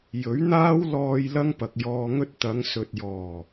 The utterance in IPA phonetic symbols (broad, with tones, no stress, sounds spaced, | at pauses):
j ɵ˨˥ ɥ n̪ aː˥ w l ɔː˧ j l ɐ˥ ŋ p ɐ˨ k̚ j ɔː˧ ŋ ɵ˥ t̚ t̪ ɐ˨˧ ŋ s ɵ˨ t̚ j ɔː˨˩